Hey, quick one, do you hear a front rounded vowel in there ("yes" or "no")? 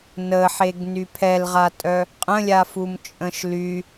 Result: yes